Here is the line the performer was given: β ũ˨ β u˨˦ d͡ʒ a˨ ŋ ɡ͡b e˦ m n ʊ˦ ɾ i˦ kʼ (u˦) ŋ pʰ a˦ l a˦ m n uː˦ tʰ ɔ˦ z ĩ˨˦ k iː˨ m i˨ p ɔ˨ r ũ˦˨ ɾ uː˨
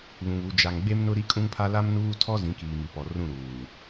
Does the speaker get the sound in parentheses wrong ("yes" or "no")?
yes